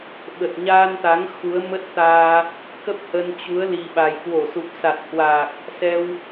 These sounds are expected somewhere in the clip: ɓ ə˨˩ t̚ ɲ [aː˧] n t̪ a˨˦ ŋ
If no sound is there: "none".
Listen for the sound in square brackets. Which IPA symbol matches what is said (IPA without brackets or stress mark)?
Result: aː˧